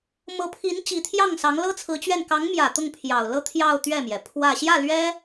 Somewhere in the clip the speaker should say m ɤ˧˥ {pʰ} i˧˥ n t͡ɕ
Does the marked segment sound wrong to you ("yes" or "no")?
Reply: no